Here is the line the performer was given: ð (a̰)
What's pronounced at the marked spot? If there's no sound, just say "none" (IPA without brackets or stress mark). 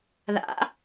a̰